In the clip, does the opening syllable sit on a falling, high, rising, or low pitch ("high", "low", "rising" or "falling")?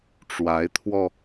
rising